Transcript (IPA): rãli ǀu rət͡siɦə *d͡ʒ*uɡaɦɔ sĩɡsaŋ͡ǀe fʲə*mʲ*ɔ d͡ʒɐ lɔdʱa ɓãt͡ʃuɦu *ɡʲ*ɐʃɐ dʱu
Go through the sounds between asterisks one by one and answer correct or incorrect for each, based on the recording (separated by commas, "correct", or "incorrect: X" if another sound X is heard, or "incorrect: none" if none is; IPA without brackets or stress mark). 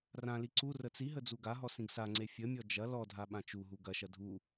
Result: incorrect: d͡z, correct, incorrect: ɡ